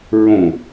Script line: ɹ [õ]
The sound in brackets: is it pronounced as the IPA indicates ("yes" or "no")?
yes